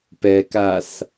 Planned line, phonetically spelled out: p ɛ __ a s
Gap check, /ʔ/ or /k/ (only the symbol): k